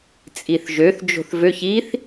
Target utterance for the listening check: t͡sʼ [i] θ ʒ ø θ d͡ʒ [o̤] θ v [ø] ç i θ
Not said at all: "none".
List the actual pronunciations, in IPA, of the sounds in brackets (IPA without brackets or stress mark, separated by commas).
i, o̤, ø